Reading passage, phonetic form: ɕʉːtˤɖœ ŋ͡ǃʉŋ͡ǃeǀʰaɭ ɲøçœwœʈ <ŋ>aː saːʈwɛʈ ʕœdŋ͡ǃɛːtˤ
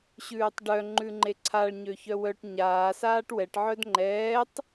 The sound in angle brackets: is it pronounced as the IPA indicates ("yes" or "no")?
no